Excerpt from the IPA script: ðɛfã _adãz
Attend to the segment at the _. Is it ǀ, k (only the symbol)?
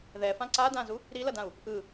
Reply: ǀ